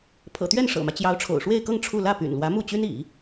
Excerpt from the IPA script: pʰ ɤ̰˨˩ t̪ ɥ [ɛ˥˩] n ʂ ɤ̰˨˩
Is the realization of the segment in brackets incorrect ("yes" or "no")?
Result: no